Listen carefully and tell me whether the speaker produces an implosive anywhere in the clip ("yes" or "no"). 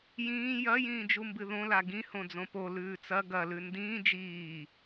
no